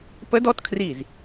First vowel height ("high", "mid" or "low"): mid